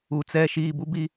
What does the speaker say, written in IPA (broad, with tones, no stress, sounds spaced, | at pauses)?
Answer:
u˨ t͡s ɛ˦˨ ʃ iː˦˨ b u˦ b i˦